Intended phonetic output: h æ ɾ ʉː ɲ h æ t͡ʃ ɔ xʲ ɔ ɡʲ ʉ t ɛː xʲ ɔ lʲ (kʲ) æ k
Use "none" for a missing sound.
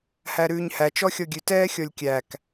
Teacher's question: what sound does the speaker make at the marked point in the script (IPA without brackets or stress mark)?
kʲ